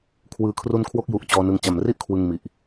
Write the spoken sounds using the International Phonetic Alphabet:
kʰ w ɯː˨˩ kʰ r u˧ n kʰ w o˦˥ k̚ j u˨˩ ʔ t͡ɕ ɔː˧ n ɯ˧ ŋ t͡ɕ a˨˩ m r i˥˩ ʔ kʰ w ɯ˧ ŋ m i˨˩ ʔ

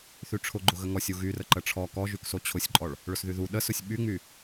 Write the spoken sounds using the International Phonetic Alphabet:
θ y ʈ͡ʂʰ ʊ ɡ͡ǃ ʊ ɣ ə ŋ ɔ sʲ u ɣ y r ə ǃ ə ʈ͡ʂʰ ɔ k ɔ ʒ y k s o t͡ɕʰ ʊ sʲ ǃʼ ɔ ɭ | ɭ ʊ s ð y ð u ɗ ə s ʊ sʲ ɓ y ŋ͡m y

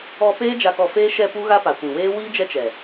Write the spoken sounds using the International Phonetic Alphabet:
ɔ˧ p eː˦ d͡ʒ a˧ k ɔ˧ f eː˦ ʃ ɛ˧ p u˦ ɣ a˦ p a˨ kʷ ĩ˨ w eː˦ w iː˦ d͡ʒ ɛ˦ t͡ʃ ɛ˨

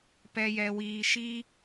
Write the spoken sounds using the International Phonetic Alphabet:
p ɛ˨ j ɛ˨ w iː˨ ʃ iː˧

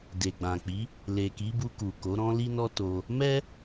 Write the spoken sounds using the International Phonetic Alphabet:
d e˨ ɡ͡b ã˨ k͡p i˨˦ | l e˨ k i˨˦ b u˧ k u˨ k o˨˦ ɾ ɔ̃˦ l i˦ n ɔ˦ t o˧ | m ɛ˦

